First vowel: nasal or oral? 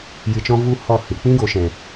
oral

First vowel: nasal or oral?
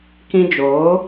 nasal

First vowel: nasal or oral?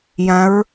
nasal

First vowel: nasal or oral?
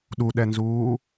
oral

